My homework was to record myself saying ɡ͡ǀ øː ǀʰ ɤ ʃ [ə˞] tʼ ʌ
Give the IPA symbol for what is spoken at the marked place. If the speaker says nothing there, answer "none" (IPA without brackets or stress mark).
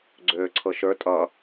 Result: ə˞